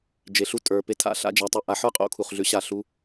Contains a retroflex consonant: no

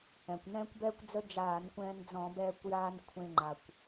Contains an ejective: no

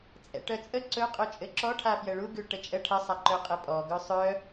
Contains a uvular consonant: yes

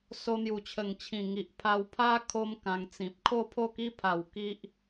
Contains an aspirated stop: yes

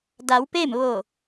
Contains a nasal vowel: no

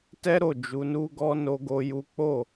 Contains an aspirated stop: no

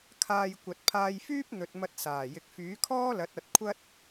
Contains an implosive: no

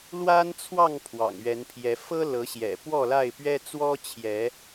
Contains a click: no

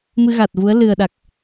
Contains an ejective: no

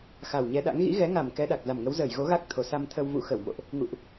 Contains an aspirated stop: yes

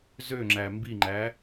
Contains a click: yes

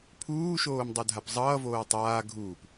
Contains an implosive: no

